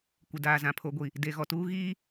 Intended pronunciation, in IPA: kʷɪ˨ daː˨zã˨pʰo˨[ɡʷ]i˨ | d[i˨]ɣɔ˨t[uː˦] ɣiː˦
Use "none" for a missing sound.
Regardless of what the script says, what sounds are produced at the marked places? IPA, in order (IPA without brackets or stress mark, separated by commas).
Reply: ɡʷ, e˨, uː˦